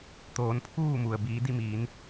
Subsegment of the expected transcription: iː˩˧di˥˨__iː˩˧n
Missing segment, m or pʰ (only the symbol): m